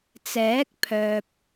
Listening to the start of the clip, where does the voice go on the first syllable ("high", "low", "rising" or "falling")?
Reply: rising